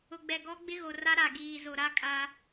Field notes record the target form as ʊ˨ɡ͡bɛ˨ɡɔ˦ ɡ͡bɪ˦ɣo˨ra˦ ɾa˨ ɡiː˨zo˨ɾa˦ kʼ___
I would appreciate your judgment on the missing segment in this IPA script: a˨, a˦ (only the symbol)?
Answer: a˦